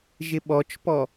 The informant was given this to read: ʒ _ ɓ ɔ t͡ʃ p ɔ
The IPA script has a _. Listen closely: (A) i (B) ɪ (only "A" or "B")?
B